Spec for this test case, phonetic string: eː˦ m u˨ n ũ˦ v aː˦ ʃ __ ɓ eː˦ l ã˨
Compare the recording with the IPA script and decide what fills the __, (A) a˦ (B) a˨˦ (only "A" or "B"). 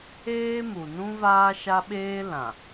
A